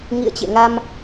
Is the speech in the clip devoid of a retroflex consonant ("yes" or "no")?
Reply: yes